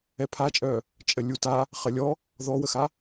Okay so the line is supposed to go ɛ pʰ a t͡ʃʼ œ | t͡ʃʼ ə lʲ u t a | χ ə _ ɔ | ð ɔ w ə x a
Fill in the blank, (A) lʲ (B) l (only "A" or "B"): A